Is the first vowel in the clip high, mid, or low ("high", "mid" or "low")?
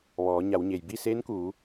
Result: mid